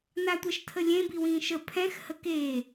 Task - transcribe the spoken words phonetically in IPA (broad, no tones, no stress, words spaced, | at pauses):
natʷɛʃtʰəlʲẽ biwĩːʃə pʰɛ̃x həkeː